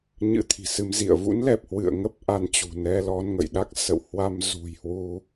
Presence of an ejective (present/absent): absent